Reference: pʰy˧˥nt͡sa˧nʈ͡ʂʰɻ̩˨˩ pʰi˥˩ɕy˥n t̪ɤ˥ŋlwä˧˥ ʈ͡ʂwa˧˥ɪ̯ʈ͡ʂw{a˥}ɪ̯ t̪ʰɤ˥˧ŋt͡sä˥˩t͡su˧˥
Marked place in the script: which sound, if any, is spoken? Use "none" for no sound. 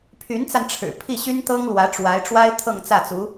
a˥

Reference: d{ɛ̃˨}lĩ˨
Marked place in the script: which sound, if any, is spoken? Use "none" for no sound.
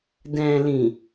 ɛ̃˨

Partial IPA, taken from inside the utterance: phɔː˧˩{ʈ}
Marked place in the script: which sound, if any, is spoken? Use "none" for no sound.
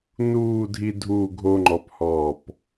p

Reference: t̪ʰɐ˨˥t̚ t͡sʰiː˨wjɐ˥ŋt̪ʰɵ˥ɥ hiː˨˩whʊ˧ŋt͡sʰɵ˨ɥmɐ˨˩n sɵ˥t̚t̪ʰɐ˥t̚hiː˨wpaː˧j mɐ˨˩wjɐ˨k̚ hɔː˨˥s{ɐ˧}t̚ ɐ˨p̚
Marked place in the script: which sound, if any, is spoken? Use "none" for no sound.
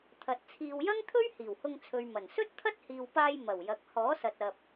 ɐ˨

